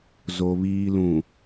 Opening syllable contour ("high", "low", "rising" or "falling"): low